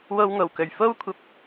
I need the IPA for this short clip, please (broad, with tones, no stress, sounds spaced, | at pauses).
w o˧ w ŋ o˨˩ w k ɵ˨˩ ɥ f o˥ w kʷʰ ɐ˨ p̚